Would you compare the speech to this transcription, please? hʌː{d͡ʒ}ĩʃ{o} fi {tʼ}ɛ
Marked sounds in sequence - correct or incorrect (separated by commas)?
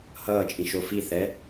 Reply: incorrect, correct, incorrect